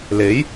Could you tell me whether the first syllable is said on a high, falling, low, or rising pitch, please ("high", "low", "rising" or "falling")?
rising